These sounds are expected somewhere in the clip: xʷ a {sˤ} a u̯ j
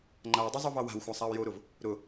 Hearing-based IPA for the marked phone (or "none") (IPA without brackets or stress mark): sˤ